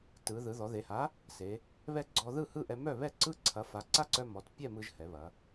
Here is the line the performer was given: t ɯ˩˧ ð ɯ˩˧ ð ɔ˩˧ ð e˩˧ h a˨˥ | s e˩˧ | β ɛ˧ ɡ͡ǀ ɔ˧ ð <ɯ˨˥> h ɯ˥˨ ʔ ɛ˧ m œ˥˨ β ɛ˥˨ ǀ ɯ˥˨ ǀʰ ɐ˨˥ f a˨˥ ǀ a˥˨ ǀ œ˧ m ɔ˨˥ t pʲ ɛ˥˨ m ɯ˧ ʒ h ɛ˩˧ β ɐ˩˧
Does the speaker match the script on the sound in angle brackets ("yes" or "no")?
no